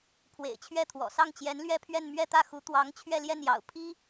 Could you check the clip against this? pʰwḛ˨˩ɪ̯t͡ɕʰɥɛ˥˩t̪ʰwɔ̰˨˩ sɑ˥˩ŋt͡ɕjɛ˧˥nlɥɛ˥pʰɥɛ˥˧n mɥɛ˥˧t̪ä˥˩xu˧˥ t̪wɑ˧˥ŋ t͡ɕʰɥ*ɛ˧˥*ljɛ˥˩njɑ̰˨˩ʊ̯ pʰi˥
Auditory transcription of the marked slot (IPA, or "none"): ɛ˥˧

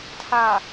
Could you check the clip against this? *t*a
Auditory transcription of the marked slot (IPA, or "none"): tʰ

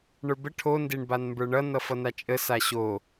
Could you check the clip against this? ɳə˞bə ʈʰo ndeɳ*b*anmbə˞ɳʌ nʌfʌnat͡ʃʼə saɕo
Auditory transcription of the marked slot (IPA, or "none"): b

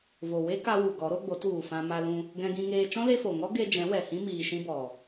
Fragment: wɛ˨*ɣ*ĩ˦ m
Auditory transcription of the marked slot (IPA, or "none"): h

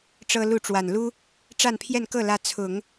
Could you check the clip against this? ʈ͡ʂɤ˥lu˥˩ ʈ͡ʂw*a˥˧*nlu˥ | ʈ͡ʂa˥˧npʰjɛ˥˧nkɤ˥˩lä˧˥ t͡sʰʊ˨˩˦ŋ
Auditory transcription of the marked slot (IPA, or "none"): a˨˩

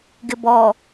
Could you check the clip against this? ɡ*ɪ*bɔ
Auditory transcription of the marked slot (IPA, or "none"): ɪ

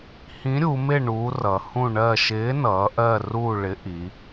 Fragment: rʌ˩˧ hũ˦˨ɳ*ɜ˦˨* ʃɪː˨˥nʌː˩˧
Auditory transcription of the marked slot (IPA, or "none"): ɜ˦˨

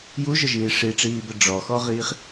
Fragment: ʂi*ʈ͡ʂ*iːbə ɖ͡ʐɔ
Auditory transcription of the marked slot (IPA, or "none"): ʈ͡ʂ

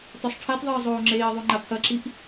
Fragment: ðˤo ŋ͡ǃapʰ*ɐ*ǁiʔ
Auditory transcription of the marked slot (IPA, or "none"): ɐ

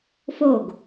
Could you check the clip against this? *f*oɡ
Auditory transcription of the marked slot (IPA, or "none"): f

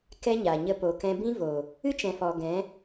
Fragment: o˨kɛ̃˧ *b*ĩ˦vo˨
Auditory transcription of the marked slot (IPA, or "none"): b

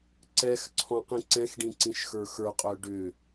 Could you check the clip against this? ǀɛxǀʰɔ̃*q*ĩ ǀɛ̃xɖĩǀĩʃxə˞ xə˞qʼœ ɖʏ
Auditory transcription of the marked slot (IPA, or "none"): q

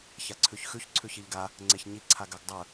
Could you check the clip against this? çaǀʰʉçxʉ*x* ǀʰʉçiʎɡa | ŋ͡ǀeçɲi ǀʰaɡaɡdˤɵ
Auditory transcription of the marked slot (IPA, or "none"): ç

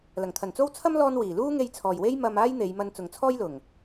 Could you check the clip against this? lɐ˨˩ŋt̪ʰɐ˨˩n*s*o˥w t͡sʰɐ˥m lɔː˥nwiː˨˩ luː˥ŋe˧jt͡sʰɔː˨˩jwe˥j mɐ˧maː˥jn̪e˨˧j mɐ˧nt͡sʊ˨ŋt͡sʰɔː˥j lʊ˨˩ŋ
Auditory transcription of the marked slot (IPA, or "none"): t͡s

